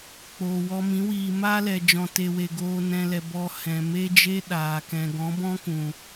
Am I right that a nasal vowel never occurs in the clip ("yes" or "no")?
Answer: no